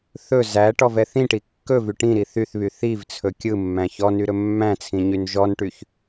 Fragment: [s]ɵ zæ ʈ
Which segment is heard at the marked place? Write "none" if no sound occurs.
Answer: θ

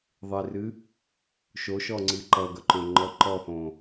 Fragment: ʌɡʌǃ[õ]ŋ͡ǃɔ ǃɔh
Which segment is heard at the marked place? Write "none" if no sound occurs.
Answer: õ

